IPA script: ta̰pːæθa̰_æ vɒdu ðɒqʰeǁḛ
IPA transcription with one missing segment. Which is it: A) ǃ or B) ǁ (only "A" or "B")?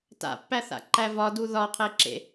A